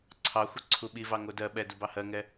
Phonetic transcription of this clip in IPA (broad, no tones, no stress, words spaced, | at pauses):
ǀʰɑ xʷəǀʰuɓivɑ ŋodɜɓɛ dubɑhɜŋɛ